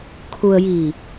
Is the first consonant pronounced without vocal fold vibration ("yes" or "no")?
yes